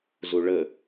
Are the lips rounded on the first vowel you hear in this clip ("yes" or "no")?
yes